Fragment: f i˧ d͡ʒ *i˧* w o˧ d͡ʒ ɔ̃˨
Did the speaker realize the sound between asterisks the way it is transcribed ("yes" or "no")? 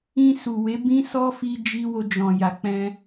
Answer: yes